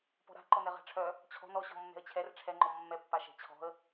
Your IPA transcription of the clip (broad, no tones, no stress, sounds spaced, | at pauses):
p ɔ̤ ɾ a̤ ǃ ɔ n ɛ ʁ a̤ ʈ͡ʂʰ œ | t͡ɕʰ ɔ̤ n ɔ ɕ ɔ̤ mː ɛ̤ ə̯ t͡ɕʰ ɛ r ʈ͡ʂʰ ɛ ŋ͡ǃ ɔ mː ɛ pː a ʃ ɛ̤ t͡ɕʰ ɔ̤ ə̯